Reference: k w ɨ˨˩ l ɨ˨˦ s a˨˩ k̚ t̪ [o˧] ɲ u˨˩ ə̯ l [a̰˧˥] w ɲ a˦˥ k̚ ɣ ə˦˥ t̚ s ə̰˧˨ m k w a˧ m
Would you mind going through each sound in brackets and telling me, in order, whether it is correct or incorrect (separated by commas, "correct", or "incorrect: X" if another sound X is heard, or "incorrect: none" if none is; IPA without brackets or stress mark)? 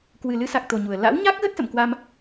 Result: incorrect: o˨˩, correct